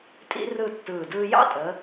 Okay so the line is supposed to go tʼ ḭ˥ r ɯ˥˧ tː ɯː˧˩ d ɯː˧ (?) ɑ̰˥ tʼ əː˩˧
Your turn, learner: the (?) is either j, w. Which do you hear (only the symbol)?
j